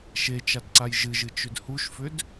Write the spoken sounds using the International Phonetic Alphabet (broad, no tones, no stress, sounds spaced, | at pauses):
ʃ e t͡ʃ a d ǀ a j ʒ ɨ ʒ ɨ t͡ʃ ʏ d h u ʃ f ʏ d